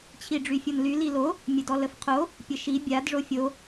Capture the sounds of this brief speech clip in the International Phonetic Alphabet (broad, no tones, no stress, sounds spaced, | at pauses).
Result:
t͡ɕʰ i ɖ͡ʐ y fʲ o n l y l i l o | mʲ ə d ɔ l ə f qʰ o | pʲ ə ʃ i bʲ a d ʐ o fʲ o